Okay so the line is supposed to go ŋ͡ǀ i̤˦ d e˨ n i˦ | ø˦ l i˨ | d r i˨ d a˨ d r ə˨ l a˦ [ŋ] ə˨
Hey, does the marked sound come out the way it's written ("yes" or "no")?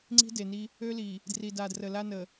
no